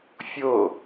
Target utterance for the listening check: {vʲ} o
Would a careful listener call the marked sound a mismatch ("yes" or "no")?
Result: yes